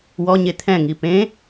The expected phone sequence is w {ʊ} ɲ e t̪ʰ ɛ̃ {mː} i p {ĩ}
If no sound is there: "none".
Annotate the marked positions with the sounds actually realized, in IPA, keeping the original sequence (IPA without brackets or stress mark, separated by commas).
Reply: ɔ, ŋ, ẽ